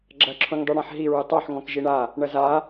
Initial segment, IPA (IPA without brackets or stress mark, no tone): ɡ͡ǁ